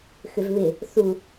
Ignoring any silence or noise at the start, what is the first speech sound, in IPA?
x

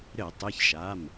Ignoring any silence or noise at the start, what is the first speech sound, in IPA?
ɾ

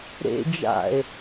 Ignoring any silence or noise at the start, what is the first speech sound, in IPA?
ɾ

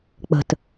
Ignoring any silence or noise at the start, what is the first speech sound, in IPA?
k͡p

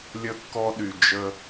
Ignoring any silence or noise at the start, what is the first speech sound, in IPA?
lʲ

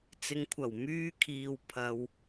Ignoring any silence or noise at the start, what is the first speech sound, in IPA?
t͡s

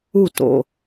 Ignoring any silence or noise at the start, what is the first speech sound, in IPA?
u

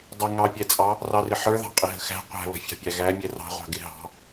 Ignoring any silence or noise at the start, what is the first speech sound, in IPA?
dˤ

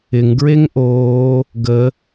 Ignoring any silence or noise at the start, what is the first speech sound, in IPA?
ɪ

